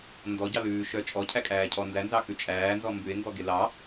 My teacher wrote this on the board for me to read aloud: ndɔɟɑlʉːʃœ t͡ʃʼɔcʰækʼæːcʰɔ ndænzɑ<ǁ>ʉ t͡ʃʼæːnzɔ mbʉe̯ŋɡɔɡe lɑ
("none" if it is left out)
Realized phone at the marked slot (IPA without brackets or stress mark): k